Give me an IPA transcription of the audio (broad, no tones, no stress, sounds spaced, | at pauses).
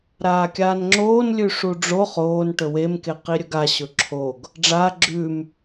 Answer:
ɾ aː kʲ aː n ŋ͡ǁ oː n lʲ ʉ ʂ u ɖ͡ʐ o χ oː n ʈ ɵ w e m k e q i ɾʲ ɵ ɡ a ɕ ɵ ǁʰ o ɡ | ɖ͡ʐ aː ɡ͡ǁ ʉ m